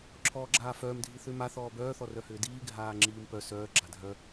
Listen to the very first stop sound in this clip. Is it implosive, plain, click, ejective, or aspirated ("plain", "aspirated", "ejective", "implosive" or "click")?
click